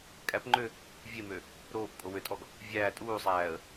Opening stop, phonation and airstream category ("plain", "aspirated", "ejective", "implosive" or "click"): ejective